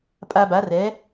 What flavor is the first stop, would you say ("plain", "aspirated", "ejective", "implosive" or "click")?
ejective